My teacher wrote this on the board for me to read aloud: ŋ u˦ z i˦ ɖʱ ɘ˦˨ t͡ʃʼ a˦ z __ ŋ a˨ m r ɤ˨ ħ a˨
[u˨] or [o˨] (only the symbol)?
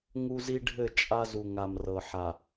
u˨